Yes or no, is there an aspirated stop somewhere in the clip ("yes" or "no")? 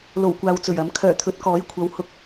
yes